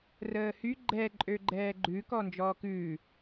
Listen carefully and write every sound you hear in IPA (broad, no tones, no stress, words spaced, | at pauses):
rəːhy ɡ͡ǃɛ ǃʼøɡ͡ǃɛːɡ͡ǃʉ kɔnd͡ʒɔːkʉː